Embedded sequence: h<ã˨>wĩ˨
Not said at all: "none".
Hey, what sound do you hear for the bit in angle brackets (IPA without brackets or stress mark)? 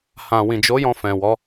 ã˨